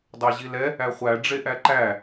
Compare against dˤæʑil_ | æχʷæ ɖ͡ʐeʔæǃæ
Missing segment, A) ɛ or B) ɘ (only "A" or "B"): A